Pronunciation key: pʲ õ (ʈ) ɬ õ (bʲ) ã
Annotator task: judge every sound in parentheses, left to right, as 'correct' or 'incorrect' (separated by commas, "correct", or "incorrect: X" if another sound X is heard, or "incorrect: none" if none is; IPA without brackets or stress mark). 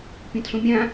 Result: incorrect: t, incorrect: mʲ